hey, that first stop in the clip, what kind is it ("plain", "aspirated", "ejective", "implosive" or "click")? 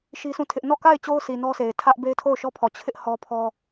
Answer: aspirated